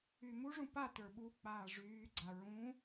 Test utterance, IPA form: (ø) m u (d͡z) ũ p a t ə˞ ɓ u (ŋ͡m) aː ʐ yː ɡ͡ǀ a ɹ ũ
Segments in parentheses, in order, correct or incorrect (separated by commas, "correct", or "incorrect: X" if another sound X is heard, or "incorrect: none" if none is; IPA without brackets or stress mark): incorrect: y, incorrect: ʐ, incorrect: k͡p